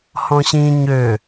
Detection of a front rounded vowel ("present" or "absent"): present